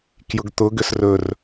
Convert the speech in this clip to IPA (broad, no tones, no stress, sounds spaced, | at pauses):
k j ʊ ɡ t̪ ʊ ɡ ʏ s r ɵ r